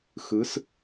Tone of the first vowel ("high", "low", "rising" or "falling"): rising